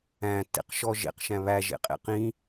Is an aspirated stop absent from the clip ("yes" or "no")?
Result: yes